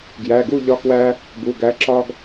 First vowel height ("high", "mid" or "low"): low